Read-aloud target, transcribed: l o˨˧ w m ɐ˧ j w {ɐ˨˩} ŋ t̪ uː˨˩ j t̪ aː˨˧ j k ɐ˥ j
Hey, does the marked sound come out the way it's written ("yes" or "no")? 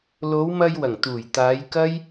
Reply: yes